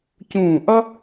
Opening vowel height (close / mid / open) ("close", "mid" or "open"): close